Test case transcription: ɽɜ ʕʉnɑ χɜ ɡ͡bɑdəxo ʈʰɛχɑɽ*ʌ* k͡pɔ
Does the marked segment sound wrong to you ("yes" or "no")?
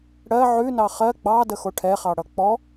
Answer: no